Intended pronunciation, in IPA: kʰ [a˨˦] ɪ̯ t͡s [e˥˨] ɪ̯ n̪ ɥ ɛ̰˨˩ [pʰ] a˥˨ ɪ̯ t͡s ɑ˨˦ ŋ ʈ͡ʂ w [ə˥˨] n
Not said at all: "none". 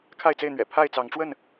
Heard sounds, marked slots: a˥˨, e˥˨, pʰ, ə˥˨

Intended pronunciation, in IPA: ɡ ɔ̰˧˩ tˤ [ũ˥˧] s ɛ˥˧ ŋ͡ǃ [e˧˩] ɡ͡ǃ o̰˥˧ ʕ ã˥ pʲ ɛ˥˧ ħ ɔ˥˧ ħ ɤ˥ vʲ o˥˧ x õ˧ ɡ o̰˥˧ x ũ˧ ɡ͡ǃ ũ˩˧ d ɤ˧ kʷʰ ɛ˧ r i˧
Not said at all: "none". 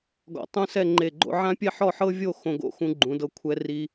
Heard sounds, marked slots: ũ˥, e˧˩

